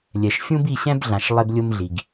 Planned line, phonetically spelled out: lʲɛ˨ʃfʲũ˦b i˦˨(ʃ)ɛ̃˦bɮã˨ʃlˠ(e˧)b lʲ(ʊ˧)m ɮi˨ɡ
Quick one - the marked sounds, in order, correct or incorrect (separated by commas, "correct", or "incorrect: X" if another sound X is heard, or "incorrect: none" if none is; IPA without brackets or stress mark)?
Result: incorrect: ɕ, correct, correct